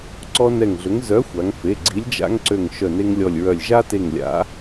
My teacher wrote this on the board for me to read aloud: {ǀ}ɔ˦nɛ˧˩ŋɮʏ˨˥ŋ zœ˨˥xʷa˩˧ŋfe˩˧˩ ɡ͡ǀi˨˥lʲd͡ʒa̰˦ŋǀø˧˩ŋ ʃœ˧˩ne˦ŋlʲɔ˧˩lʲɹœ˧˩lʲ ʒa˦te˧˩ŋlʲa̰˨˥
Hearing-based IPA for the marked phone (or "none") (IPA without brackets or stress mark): ǀ